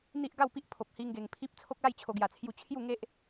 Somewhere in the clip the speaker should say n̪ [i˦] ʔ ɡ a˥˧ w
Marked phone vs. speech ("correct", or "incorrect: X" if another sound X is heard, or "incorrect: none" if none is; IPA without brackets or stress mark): correct